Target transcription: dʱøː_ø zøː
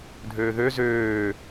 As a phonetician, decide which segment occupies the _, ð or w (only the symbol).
ð